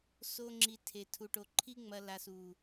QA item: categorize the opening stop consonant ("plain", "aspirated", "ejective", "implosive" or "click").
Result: click